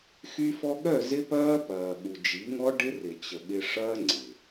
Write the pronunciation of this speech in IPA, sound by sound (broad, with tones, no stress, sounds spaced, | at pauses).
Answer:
x y˧ f ɔ˧ ɠ œ˦˨ z ɪ˦ p ɐː˦ p ɐː˨ ɠ u˨ d͡ʒ i˨˦ ŋ ɔ˦ ɖ ɪ˦ r ɪ˨ t͡ɕ ə˨ ɠ ɪ˧ ʂ ɐː˦ ŋ͡ǀ ɪ˨